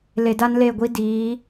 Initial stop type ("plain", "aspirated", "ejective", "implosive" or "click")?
plain